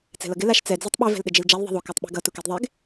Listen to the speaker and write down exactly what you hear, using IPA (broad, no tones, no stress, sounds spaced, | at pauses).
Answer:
t͡s ɛ̤ l ʌ ɡ ɪ l a ʃ t͡s ɛ d͡z u tˤ ɓ e v ɛ̤ l ɗ ɪ d͡ʒ i l d͡ʒ a l ðˤ i̤ ðˤ u k a tˤ ɓ e̤ ɡ ʌ t u k ɛ d ðˤ e ɡ